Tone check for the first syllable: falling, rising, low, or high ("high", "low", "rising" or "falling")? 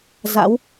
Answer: rising